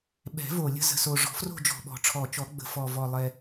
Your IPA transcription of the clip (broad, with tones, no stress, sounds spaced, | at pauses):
ɓ ɛ̤˨˩˦ v o˨˩ lʲ ə̤˥˧ z ə̤˨˩ s o˨˩ ʐ ɔ̤˨˩˦ f r o̤˥˧ d͡ʒ ɔ̤˨˩ ɓ ɔ̤˨˩˦ ʈ͡ʂʰ ɔ˨˩ t͡ʃ ɔ˨˩˦ ɡ͡b ə̤˨˩ f ɔ˨˩ v ɔ˨˩ lˠ ɛ˨˩